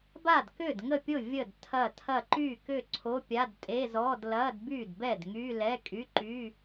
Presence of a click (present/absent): present